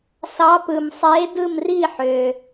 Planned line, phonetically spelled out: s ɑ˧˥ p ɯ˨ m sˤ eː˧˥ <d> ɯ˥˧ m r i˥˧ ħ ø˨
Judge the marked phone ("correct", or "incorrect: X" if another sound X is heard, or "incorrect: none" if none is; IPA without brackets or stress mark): correct